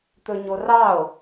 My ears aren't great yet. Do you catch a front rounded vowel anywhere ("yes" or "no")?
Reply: no